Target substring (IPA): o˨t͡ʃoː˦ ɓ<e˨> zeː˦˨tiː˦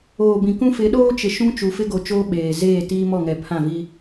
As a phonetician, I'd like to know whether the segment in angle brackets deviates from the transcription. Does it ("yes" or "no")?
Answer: yes